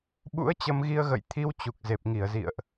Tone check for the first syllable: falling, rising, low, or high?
rising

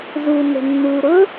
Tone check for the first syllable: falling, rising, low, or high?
low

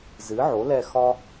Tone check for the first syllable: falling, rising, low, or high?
rising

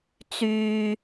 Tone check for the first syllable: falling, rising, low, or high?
high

